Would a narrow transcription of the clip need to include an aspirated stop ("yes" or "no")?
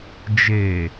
no